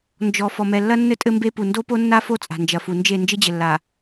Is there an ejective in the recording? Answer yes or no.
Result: yes